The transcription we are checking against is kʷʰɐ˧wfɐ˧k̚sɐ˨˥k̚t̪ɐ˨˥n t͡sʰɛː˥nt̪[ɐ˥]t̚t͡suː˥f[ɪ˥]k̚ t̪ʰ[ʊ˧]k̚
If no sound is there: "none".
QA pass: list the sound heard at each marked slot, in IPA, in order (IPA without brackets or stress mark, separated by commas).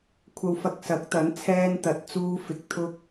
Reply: ɐ˧, ɪ˧, ʊ˥